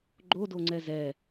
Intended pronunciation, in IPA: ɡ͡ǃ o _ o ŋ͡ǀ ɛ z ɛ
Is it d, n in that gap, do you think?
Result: d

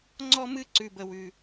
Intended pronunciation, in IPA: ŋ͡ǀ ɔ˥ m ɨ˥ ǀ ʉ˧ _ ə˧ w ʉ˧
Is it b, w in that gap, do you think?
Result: b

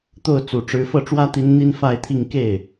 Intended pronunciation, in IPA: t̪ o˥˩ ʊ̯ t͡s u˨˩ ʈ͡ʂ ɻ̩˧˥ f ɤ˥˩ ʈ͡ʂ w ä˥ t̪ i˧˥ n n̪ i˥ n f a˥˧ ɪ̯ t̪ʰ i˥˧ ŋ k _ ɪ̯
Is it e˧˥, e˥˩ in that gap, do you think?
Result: e˥˩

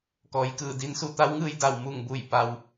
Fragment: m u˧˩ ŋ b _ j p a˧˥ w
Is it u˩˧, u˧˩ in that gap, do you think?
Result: u˧˩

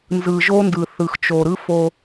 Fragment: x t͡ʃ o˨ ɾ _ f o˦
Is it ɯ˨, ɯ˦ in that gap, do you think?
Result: ɯ˦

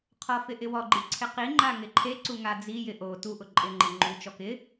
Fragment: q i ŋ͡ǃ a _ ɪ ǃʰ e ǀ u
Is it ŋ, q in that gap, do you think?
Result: ŋ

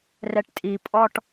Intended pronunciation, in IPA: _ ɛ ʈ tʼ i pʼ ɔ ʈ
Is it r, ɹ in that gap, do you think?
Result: r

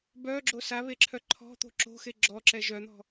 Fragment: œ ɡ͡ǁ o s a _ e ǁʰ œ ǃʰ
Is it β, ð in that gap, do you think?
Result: β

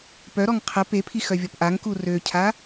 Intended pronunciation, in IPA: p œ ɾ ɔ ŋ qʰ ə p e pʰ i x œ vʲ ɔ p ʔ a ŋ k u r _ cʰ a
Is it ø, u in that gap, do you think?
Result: ø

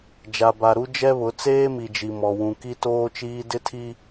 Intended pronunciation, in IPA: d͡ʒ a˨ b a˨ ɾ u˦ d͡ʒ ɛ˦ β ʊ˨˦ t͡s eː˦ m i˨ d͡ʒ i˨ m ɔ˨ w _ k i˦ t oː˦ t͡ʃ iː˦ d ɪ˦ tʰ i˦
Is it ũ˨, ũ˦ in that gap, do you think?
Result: ũ˨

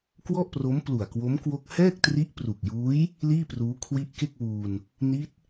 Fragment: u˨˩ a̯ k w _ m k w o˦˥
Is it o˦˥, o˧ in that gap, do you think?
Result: o˦˥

